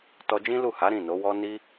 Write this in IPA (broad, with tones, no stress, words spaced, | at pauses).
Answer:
tɔ˧d͡ʒĩ˦lu˦˨ha˨˦ ɾĩ˦˨no˨˦wɔ˦ ni˦